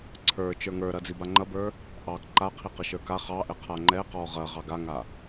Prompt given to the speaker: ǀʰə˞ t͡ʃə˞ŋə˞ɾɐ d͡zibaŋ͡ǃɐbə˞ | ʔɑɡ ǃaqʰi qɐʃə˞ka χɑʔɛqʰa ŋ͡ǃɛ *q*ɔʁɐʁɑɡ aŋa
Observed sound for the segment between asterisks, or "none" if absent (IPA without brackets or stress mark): q